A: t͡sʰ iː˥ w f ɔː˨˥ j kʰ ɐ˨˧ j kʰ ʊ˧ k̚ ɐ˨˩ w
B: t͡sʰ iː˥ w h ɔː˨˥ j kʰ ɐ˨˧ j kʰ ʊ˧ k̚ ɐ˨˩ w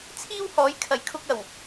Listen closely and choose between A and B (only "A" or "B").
B